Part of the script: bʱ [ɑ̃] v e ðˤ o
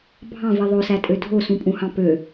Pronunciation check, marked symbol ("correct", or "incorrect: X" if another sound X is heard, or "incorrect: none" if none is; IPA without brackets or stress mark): correct